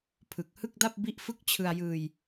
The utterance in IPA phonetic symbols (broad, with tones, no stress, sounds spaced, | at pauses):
pʰ ɯ˨˩ k̚ h ɯ˥˩ k̚ d a˥˩ p̚ b i˥˩ ʔ f ɯ˥˩ k̚ t͡ɕʰ ɯ˧ a̯ j ɯː˧ j